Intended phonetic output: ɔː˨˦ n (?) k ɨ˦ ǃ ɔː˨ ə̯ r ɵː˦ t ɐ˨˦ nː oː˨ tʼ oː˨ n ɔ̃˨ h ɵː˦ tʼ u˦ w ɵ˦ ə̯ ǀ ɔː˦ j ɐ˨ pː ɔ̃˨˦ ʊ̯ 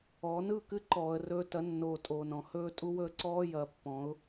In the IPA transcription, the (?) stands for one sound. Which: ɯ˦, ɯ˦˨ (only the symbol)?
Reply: ɯ˦˨